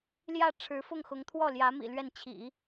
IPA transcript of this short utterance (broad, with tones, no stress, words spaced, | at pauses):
ljä˥˩ ʈ͡ʂʰɻ̩˧˥fʊ˥˩ŋxʊ˧˥ŋ t̪ʰwɔ˥˩ljä˧˥ mḭ˨˩lɥɛ˥˩n t͡ɕʰḭ˨˩˦